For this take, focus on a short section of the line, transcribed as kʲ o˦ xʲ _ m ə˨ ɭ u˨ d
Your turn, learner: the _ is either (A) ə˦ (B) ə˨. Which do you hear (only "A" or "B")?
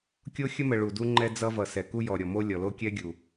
A